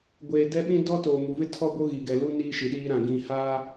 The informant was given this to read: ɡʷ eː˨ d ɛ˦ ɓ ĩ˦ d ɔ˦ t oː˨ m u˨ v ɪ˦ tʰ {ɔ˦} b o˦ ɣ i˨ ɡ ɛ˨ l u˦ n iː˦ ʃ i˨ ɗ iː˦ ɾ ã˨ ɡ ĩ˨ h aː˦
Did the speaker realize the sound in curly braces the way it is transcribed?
yes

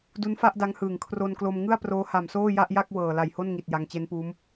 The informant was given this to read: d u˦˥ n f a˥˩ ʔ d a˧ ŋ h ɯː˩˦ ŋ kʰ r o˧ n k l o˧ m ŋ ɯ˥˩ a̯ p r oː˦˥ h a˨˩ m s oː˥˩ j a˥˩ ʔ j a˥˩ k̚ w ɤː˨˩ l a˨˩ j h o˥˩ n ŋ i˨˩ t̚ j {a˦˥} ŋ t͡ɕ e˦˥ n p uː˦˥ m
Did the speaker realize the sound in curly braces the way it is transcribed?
no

